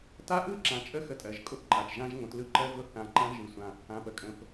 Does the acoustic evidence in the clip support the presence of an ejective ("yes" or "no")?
yes